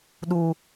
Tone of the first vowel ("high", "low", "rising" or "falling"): high